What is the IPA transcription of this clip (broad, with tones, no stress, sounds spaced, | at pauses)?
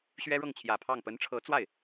ɕ ɥ ɛ˥ ɻ ɤ˥˩ ŋ t͡ɕʰ j ä˨˩ pʰ ɑ˥˩ ŋ p ə˧˥ n ʈ͡ʂʰ ɤ˧˥ t͡s w a˥˩ ɪ̯